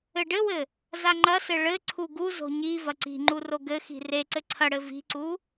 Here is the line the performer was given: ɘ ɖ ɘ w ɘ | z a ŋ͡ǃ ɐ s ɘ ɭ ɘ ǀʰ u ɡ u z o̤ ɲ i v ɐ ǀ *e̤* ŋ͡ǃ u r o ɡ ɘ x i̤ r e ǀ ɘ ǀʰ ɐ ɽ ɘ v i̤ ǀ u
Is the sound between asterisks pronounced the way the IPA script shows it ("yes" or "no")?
no